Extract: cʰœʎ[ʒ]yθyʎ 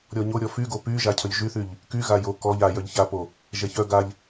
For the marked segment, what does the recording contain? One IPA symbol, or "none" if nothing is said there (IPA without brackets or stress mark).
ʒ